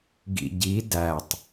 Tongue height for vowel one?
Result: high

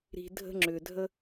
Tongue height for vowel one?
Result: high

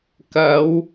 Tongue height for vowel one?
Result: low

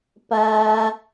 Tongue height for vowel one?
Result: low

